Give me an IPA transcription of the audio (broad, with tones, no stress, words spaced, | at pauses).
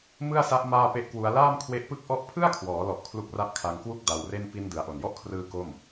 mɯ˥˩a̯sa˦˥ʔ maː˥˩pe˥˩ʔkwu˦˥a̯ laː˥˩mkʰwe˦˥ʔpɯ˥˩k̚ʔɔ˥˩ʔ pʰɯ˥˩a̯kʰwɔː˩˦lɔ˨˩ʔ kʰlu˦˥k̚ra˦˥ʔkʰa˧ŋkwu˥˩k̚ da˧wre˥˩n pi˧n dɯ˩˦a̯ʔo˨˩n jɔ˥˩ʔkʰrɯː˧ ko˥˩m